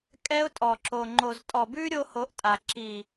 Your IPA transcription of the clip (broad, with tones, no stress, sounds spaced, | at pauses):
kʼ ɛ˦ ʊ̯ tʼ ɔ˨ ǁ o˨ ŋ͡ǃ o˨ z tʼ ɔ˨ b ʉ˦ ɾʲ o˦ h o˧ ʔ tʼ a˨ ǁ i˨